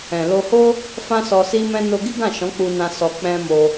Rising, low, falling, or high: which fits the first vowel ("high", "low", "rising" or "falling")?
low